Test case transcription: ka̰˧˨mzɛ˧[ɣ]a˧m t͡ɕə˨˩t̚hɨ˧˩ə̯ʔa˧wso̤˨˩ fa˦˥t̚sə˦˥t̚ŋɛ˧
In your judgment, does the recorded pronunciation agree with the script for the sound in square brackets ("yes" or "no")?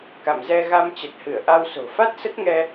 yes